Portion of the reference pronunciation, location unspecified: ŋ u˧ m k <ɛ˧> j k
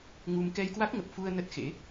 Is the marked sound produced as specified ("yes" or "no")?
yes